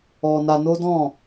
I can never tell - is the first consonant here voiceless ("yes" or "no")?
no